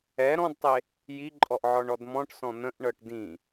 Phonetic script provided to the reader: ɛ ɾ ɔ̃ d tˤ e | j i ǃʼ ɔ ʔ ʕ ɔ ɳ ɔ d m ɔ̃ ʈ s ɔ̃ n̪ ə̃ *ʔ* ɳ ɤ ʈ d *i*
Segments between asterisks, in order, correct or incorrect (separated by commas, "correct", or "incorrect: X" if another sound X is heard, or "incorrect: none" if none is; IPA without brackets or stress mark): correct, incorrect: ĩ